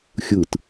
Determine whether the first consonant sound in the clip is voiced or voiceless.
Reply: voiceless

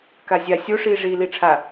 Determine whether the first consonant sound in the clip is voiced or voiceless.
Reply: voiceless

